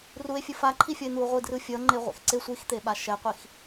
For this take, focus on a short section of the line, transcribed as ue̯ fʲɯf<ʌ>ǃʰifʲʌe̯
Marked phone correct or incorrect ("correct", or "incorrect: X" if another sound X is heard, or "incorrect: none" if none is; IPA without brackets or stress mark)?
incorrect: a